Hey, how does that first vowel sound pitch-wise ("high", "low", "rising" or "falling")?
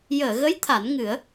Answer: low